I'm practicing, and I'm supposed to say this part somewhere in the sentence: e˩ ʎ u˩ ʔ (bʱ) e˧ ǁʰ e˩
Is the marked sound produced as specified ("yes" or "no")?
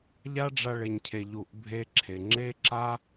yes